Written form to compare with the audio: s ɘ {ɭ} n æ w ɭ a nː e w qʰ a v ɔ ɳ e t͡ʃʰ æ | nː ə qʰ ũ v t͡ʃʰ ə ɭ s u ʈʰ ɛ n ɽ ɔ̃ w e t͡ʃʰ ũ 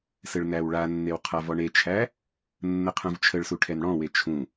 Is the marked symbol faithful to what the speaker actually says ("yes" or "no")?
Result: yes